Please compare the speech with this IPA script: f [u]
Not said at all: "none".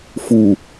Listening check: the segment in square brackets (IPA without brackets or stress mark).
u